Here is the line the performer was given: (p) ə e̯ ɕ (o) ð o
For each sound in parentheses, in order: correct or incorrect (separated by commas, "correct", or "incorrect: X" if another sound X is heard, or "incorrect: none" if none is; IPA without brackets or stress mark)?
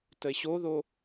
incorrect: t, correct